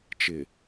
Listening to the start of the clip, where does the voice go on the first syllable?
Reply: low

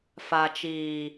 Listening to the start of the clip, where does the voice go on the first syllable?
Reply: low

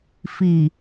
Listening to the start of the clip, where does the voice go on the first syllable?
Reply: low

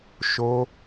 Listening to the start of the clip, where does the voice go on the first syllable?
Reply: high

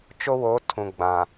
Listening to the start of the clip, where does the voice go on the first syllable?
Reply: high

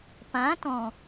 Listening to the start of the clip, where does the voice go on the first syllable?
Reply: rising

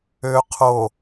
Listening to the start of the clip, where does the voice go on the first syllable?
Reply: low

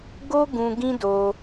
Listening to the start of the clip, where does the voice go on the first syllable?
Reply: high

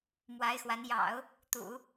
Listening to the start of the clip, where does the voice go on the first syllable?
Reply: rising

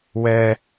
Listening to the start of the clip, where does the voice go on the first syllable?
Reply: high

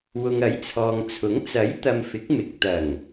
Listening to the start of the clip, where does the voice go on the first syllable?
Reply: low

